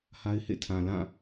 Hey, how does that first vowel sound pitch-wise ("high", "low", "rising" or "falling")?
high